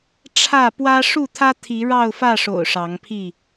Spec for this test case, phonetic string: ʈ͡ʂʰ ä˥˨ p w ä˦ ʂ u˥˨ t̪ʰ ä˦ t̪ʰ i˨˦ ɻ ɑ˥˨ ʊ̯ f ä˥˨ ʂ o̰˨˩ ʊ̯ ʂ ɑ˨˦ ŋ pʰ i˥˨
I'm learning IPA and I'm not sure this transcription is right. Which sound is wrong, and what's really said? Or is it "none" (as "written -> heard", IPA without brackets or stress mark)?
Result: none